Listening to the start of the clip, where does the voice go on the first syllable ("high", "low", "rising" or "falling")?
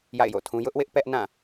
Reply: falling